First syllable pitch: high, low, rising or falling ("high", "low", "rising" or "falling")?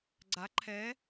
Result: rising